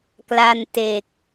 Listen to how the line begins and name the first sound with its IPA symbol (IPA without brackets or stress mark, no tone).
k